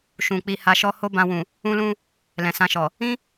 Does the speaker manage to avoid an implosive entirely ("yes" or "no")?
yes